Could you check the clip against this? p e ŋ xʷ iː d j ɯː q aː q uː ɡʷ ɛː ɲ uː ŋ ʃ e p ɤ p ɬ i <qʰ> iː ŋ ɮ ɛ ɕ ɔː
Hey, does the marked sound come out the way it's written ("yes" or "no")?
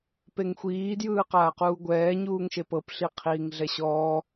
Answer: yes